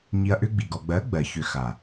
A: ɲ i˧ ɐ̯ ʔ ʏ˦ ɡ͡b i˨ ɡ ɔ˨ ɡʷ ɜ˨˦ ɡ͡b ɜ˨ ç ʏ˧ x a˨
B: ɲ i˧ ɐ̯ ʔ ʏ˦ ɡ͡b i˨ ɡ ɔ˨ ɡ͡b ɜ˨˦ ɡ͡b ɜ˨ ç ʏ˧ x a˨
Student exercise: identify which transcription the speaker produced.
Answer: B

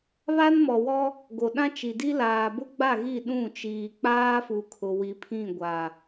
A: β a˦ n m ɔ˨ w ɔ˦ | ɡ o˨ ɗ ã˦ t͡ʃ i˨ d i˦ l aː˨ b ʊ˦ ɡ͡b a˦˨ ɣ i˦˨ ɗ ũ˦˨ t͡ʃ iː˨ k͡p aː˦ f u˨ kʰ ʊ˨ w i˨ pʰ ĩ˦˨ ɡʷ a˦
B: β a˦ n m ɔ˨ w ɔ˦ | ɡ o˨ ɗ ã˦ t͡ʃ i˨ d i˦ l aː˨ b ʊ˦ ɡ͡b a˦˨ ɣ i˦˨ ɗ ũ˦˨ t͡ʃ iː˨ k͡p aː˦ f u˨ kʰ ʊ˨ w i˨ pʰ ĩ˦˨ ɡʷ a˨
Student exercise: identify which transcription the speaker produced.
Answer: B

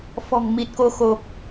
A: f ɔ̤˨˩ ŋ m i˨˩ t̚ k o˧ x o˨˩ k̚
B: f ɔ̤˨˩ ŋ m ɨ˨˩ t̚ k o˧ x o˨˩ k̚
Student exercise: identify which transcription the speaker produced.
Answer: A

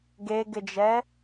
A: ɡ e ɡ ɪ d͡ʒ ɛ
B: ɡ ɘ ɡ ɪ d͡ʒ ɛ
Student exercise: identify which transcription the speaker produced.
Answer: A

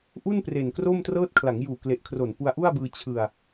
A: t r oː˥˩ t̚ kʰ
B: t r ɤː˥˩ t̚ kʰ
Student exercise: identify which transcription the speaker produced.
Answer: B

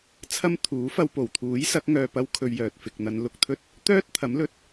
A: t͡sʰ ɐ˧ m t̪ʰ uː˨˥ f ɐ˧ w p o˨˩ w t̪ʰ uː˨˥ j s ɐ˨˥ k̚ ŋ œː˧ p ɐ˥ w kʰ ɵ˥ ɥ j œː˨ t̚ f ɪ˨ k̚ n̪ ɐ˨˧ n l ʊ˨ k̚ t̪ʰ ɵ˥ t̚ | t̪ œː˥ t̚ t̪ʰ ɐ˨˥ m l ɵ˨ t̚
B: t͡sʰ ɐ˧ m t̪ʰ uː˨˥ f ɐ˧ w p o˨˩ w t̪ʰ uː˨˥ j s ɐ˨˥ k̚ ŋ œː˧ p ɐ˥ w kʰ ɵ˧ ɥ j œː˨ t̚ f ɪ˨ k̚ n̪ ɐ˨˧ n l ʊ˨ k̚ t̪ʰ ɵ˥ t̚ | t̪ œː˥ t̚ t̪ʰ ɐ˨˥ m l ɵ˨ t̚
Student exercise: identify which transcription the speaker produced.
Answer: B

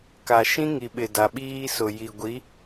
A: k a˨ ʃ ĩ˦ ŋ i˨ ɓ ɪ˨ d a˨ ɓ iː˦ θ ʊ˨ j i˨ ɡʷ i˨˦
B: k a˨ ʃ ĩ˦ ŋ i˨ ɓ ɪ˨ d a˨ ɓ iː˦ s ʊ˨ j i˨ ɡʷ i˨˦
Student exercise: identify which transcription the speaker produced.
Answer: B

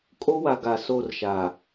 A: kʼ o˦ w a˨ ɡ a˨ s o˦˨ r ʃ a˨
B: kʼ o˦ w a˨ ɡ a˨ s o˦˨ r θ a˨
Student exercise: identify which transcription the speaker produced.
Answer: A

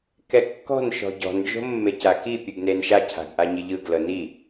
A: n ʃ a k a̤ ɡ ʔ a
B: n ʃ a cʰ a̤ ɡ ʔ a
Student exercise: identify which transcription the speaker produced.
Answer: B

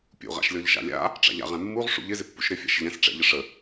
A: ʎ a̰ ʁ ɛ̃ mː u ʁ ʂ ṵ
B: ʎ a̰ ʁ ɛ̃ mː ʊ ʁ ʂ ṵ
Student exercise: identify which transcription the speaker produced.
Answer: A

